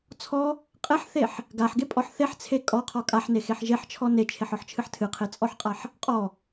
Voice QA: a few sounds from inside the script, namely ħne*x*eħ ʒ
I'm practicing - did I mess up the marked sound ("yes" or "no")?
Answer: no